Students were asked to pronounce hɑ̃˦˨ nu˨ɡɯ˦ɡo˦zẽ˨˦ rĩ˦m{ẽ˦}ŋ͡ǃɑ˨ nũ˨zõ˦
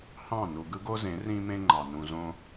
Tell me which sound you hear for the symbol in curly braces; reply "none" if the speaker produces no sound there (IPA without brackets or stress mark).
ẽ˦